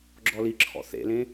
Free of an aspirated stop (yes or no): no